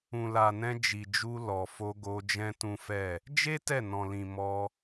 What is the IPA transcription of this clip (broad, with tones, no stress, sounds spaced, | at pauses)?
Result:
ũ˨ l a˨ n ɛ̃˧ d͡ʒ i˨ d͡ʒ u˧ l ɔ˨ f o˧ ɡ o˧ d͡ʒ ɛ̃˦ t ũ˦ f ɛ˦˨ | d͡ʒ e˦ t ɛ˦˨ n ɔ̃˨ l ĩ˨ m ɔ˧